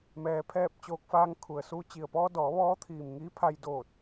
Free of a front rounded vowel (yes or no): yes